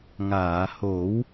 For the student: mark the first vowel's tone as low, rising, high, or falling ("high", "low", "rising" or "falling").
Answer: low